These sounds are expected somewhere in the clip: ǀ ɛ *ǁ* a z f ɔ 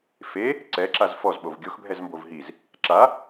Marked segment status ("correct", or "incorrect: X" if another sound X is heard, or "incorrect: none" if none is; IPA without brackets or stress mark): correct